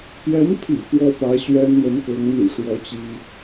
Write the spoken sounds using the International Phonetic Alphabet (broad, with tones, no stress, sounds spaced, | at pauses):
p j ɛ˧˥ n pʰ ḭ˨˩ p w ɔ˥ p ä˧˥ ɕ ɥ ɛ˥ n n̪ ə˧˥ n k ɤ˧˥ ŋ n̪ y̰˨˩ ʂ w ɔ˧˥ t͡ɕ i˥